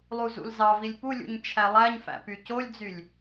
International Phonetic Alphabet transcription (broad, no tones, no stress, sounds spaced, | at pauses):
lˠ u z ṵ l z ɑ v i lʲ p u lʲ ṵ ɲ t͡ʃʰ æ lˠ æ ɲ f æ̰ p y c o lʲ d͡z y lʲ